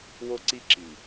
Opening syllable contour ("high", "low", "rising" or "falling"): high